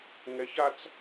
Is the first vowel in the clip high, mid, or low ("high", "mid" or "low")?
mid